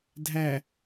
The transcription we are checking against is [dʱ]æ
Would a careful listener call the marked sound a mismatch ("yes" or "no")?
no